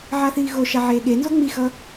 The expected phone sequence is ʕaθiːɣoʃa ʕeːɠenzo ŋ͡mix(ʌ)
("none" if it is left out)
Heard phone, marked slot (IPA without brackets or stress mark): ʌ